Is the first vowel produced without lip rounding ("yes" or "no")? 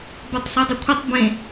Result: no